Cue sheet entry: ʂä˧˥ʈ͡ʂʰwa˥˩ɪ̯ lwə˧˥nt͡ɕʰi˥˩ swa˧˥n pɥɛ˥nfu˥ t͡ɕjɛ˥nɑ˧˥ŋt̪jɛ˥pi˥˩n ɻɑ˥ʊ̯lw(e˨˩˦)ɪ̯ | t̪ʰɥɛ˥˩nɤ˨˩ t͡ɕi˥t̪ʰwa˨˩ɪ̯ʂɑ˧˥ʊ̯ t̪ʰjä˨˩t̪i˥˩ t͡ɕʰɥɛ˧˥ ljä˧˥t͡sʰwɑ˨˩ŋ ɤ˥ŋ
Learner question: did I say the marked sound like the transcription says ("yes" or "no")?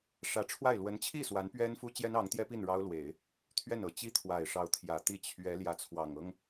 yes